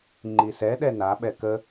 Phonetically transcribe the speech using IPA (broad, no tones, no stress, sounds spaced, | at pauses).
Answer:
ŋ͡ǃ i s ɛ ɗ ɛ n a ɓ ɛ k ə